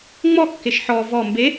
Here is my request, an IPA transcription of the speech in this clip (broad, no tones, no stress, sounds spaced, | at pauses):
ŋ͡m ɔ kː e ʃ ħ ɔ v ɔ m b e